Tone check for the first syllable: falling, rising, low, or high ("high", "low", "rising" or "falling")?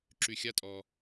low